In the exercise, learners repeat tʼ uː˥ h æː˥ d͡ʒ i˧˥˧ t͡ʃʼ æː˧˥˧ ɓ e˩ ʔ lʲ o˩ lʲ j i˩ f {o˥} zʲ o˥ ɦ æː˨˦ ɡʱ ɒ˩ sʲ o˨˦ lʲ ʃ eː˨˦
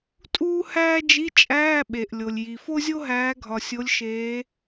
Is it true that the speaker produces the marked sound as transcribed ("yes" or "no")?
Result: yes